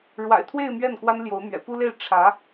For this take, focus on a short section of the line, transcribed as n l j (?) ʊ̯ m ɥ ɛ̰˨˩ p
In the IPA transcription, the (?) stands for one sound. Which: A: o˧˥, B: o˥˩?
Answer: A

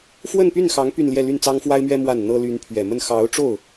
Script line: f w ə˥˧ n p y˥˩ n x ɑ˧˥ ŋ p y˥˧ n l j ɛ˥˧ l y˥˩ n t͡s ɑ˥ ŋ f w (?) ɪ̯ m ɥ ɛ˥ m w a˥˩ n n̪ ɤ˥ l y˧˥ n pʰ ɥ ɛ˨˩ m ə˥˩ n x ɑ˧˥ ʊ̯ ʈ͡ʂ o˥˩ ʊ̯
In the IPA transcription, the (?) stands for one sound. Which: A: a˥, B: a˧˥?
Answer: A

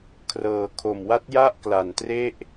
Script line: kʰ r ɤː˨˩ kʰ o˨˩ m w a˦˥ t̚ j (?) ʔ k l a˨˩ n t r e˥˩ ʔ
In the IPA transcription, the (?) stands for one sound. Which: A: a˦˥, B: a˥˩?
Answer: B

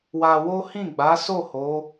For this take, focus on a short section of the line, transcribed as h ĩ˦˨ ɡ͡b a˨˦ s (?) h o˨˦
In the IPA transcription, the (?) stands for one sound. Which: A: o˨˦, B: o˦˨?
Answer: B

